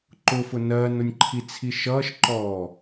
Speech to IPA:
ǃ ʊ f ʊ n ɜː n ʊ nʲ ǃʰ i t͡sʰ i ʃ ʌː ʃ ǃ ɔː

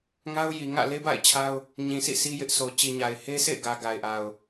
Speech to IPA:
ŋ a˦ ʊ̯ j i˨ ŋ ä̰˦˨ l e˦ b a̰˦˨ ɪ̯ t͡ɕʰ a˦ ʊ̯ | ɲ ĩ˨ sʰ ḭ˦˨ sʰ i˦ j ɪ˦ ʔ sʰ o˨ t͡ɕ i˨ ɲ a˨ ɪ̯ h e˦ sʰ ḛ˦˨ ɪ̯ ɡ ä˨ ɡ a˨ ɪ̯ ʔ a˨ ʊ̯

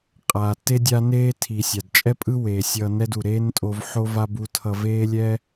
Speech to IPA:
qʼ aː˩ tː e˥ dʲ a˧ n eː˧ tʰ i˩ sʲ a˩ d t͡ʃʼ ɛ˥ pʼ ɯ˥ w eː˩ sʲ ʌː˧ n ɛ˥ d u˩ ɾ eː˥ n tʼ o˧ v ħ o˥ v a˥ b u˧ tʰ ʌ˧ v eː˥ lʲ ɛ˥

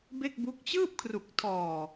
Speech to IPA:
b e˥˩ k̚ b u˦˥ k̚ t͡ɕ ɯː˥˩ p̚ kʰ r u˨˩ k̚ tʰ ɔː˨˩

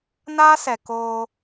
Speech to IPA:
n aː˦ s ɛ˨ k oː˧

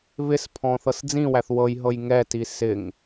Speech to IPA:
β ɪ s pʰ ɔ̃ θ ɤ s d͡z ĩ w æ θ w ɤ j ɦ ɤ j ŋ ɛ t i s ɪ ŋ

